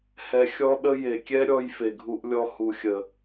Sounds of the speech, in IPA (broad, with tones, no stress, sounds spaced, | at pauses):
h ɛ˦ xʲ ɔ˦ ɗ ə˦ j e˨ kʲ ɛ˦ ɾʲ ɔ˧ j f e˨ ɡʱ u˧ ʔ lʲ ɔ˧ h u˨ xʲ ə˨